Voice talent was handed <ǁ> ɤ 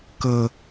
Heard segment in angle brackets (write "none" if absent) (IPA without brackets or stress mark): k